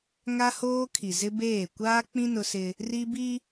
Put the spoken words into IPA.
ŋ a˦ h oː˦ kʰ i˨ z ɪ˦ b eː˦˨ kʷ aː˦ k͡p ĩ˦ n ʊ˦ s ɪ˦ | r i˦ b i˦

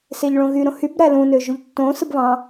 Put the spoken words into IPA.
s e ʎ ɭ õ ɣ y ɾ õ h y b ɾ æ l ũ n ø ʒ u ʎ tː õ s ɯ b β ɑ̃

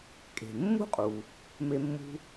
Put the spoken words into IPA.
kʼ e̤˩ mː ṳ˥ qʼ u˩ | m e˦ mː ṳ˥

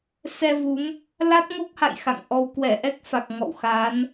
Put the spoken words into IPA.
s ɛ˧ v u˨˦ m | l a˦˥ t̚ ŋ o˦˥ k̚ h a̰˧˨ j x a̰˧˨ ŋ ʔ ɔ˧ w k w ɛ˧˩ ʔ ɛ˦˥ k̚ f a˨˩ k̚ ŋ ɔ̰˧˨ w x a˨˦ n

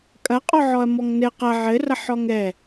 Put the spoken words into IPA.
kʼ ɐ qʼ ɔ ʕ ɔ ɐ̯ m ɔ ŋ n ɘ q ɐ ʕ ɘ r ɐ ħ ɔ ŋ ɛ

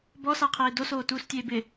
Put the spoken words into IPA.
b ɔ s a qʰ eː d o s oː t uː s tʲ eː b ɪ

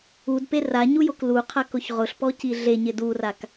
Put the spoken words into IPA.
u d p e r a ɲ u j o k l u qʰ a k ʊ ç ʁ ʊ ɬ p ɔ c i ɮ e ɲ ɪ d u r a k

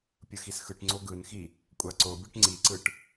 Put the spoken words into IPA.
pʲ ɯ x i s x ɯ ʈ ŋ͡ǀ o ɡ ɯ n x i | kʷʼ a ǀ o bʲ ʌ ʈ ŋ͡ǀ i ǀ ɯ ʈ

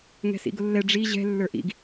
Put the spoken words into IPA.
ŋ ɛ̤ s ḭ ɡ ʊ lː ɛ ɖ͡ʐ i ʑ ɛ̤ lː ə˞ ʔ ḭ ɡ

